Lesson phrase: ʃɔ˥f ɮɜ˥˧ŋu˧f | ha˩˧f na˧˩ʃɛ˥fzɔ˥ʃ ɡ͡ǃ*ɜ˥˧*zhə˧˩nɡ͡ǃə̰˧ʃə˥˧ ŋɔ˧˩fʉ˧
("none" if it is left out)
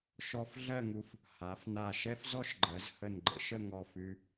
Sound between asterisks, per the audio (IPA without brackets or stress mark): ɜ˩˧